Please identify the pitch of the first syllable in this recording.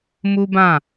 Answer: high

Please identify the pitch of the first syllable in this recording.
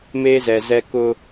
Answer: high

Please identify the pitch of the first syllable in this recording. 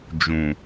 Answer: low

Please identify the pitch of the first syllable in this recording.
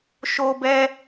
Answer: low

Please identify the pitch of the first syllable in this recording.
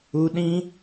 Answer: high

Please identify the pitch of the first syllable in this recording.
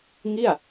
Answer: falling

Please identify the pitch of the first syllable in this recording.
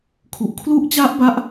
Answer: low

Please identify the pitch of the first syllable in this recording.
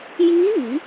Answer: rising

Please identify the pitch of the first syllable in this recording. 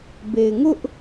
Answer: low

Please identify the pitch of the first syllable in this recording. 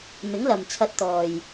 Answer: rising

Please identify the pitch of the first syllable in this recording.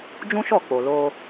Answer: high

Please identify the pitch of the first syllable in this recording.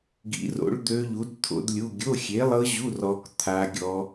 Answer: rising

